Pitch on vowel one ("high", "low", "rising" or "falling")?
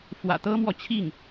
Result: low